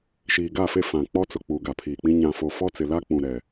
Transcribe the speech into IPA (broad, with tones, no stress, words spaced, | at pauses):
ʃiː˨ɡa˦˨fe˦˨ fã˨k͡pɔ˦t͡sʊ˨ k͡puː˨ɡa˨pʰiː˨k͡pĩ˦ ɲã˨fo˨fɔ˦ t͡sɪ˨la˦ k͡pũ˨ ɾɛ˨